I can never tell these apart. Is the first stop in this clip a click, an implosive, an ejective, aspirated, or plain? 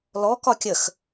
plain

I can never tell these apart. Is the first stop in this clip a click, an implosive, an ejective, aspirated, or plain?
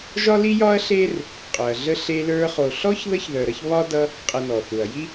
ejective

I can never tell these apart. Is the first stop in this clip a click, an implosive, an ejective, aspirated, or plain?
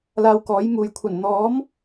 plain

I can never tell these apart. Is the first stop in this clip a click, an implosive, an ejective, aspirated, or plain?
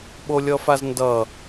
implosive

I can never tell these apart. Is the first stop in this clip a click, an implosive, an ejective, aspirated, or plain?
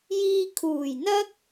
aspirated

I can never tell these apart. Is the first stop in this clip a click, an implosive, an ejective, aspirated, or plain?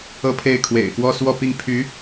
aspirated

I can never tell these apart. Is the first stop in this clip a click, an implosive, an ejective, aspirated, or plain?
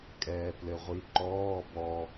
ejective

